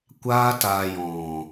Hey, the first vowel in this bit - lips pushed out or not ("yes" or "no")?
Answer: no